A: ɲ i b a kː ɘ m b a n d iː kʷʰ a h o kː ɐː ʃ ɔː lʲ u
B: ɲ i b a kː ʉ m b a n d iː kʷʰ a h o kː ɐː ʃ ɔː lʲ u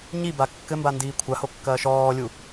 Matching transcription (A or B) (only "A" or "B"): A